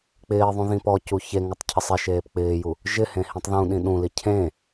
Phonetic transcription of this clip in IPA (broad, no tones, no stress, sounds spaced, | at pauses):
k͡p ɪː ðˤ ũ ð ĩ p ɔ c u ç e ŋ ʊ tˤ cʰ ɪ sˤ ɪ ʃ eː p k͡p ɪː j u | ʒ ɪ h ẽ h ĩ tˤ ð ũ ɗ ĩ ɗ ũ l i cʰ ẽ